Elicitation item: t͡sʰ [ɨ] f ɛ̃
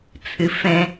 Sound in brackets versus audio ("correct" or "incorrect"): correct